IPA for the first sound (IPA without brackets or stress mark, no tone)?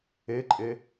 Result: e